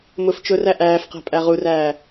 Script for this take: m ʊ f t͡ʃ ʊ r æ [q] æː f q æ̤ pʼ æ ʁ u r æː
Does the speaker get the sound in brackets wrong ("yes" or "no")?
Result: yes